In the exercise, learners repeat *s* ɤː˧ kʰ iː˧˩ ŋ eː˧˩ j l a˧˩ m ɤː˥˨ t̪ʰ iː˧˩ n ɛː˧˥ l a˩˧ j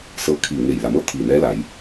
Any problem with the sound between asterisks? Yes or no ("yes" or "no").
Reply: no